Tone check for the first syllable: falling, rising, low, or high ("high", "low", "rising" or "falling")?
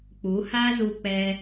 rising